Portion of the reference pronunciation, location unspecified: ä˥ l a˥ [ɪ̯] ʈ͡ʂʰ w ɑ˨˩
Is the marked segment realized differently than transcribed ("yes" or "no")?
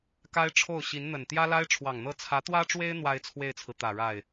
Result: no